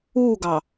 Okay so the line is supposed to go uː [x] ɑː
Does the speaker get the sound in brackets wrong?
yes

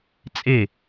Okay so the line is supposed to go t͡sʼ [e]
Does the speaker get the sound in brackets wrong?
no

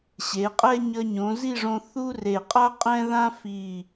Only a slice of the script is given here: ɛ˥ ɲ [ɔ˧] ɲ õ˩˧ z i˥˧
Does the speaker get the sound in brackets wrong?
yes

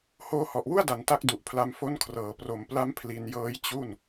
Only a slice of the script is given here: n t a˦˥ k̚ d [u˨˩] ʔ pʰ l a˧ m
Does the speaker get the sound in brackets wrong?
no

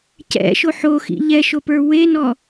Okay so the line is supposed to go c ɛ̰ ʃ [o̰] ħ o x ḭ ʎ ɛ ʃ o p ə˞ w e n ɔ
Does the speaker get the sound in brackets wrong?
yes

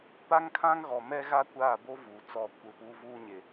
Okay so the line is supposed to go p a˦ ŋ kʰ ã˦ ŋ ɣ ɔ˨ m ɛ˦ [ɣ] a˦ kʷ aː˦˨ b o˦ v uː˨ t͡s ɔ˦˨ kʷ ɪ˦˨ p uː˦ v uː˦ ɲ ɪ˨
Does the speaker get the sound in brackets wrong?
no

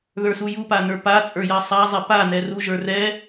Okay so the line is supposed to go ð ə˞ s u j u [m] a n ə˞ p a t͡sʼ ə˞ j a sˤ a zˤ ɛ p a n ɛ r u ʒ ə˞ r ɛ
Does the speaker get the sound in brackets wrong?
yes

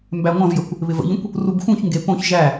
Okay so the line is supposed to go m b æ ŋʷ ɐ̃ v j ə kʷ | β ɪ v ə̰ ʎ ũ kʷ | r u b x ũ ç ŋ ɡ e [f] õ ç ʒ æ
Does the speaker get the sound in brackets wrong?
yes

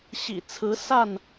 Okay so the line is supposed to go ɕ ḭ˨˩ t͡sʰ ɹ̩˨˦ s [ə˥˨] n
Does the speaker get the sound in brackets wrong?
yes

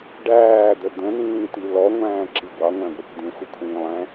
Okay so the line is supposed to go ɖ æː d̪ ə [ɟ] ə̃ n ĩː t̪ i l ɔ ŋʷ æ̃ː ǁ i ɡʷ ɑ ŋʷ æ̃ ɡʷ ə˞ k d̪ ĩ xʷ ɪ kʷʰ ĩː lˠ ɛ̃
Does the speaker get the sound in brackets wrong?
yes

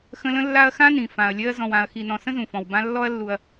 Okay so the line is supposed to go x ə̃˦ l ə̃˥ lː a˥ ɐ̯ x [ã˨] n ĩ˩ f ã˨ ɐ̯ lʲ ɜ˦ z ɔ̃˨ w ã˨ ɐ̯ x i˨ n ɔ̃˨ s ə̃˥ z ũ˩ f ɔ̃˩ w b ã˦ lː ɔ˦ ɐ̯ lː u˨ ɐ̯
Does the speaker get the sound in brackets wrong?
yes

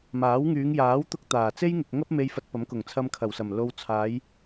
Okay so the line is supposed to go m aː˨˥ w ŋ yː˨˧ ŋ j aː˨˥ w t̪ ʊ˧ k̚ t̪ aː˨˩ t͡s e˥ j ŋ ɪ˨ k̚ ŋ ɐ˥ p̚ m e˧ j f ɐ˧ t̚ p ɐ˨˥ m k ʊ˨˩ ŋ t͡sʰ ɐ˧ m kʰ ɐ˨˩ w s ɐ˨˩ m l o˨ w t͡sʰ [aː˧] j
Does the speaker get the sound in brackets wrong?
yes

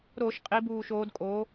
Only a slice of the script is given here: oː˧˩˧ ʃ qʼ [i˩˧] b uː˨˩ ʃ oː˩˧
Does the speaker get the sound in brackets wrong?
no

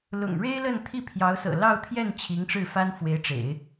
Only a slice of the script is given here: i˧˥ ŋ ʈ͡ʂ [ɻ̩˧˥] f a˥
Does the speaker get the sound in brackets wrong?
yes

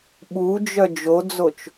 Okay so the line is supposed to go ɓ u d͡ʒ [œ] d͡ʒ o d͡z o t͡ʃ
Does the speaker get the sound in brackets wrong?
no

